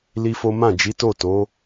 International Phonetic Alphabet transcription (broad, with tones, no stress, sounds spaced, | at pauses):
l i˦ f o˦ m ã˦˨ d͡ʒ i˨˦ t o˦˨ t o˨˦